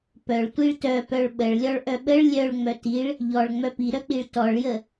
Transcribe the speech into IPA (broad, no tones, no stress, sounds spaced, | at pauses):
p œ ɭ tʷ i ɭ t œ p œ ɭ ɓ ə ɭ lʲ ɔ ɭ ʔ œ ɓ ə ɭ lʲ œ ɭ ŋ͡m œ t i ɭ | ʎ ɔ ɭ ŋ͡m œ p i ɾ œ k͡p i ɭ t ɔ ɭ j ə